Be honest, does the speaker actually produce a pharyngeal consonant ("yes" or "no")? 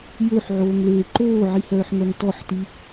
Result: yes